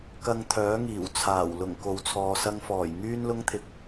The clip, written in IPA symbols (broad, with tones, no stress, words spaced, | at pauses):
kɐ˧ŋt̪ʰœː˨˥ŋiː˨˩wt͡sʰaː˨˩w lʊ˨˩ŋ ko˨wt͡sʰɔː˨sɐ˧ŋfɔː˨˩j ŋyː˥nlʊ˥ŋt̪ʰɪ˧k̚